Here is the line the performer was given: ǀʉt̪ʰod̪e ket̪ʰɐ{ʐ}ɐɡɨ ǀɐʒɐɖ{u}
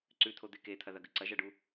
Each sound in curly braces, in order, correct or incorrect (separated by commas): incorrect, correct